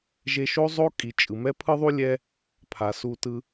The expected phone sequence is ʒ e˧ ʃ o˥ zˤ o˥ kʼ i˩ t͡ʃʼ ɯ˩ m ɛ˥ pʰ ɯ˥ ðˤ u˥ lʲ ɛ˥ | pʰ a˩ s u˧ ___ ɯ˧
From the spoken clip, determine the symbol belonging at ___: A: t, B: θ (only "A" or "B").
A